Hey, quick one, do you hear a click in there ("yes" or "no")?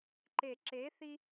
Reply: yes